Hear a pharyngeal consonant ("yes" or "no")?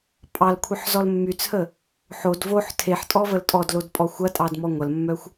yes